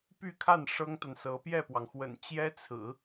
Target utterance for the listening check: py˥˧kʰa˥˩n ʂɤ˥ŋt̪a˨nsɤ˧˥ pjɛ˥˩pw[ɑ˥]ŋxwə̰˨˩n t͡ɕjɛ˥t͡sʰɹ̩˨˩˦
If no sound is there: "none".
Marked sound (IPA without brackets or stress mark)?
ɑ˩